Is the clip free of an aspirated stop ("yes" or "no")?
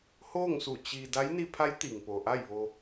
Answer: no